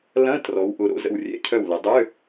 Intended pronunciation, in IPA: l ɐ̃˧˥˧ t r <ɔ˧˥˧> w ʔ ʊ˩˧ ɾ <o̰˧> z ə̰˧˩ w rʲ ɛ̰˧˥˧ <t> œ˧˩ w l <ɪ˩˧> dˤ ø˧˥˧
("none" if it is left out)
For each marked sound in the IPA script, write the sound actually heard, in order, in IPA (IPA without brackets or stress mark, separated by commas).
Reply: ɔ˩˧, o̰˧, cʰ, ɪ˩˧